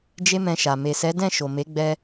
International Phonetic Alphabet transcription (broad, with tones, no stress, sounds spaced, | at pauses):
d͡ʒ e˦ m ɛ̃˧ ʃ a˨ m e˨ s ɛ˨˦ d ɛ̃˦˨ ʃ o˨ m e˨˦ ɡ͡b ɛ˧